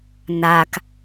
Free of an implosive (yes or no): yes